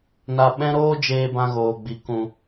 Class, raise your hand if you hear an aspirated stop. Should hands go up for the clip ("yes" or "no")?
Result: no